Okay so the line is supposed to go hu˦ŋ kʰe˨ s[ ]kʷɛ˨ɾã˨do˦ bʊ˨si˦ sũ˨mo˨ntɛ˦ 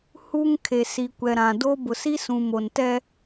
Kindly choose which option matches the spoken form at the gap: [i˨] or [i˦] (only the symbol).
i˨